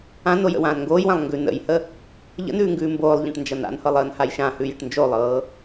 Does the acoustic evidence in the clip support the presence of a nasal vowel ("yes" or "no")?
yes